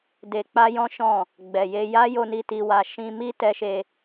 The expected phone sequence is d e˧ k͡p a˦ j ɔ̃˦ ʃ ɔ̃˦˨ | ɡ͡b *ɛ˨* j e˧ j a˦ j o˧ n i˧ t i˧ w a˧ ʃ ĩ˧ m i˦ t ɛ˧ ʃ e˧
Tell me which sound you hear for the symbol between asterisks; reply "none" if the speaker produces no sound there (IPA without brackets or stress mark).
ɛ˨